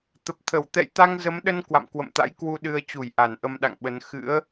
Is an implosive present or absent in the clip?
present